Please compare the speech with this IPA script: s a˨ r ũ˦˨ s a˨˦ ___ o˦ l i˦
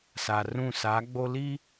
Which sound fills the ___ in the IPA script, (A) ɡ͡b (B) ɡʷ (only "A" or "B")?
A